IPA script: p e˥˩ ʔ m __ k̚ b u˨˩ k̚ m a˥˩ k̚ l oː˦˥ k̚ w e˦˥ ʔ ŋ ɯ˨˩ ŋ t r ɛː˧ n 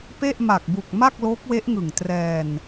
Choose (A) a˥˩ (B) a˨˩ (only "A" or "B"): B